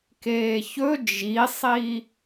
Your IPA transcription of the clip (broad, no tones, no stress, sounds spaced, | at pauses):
k eː ç ɵ d͡ʒ i sˤ i